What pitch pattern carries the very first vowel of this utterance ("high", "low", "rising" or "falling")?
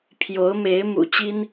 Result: rising